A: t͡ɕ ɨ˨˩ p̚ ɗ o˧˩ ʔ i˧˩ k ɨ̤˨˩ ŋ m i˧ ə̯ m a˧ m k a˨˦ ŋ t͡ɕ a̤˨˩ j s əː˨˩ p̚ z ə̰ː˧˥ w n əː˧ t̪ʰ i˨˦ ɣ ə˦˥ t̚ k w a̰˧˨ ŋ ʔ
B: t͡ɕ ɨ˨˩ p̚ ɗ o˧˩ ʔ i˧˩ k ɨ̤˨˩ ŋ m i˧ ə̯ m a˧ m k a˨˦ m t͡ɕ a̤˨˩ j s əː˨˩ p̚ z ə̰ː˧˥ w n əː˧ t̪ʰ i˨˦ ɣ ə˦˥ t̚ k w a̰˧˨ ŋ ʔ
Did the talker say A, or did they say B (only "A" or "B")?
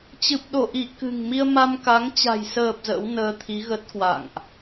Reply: A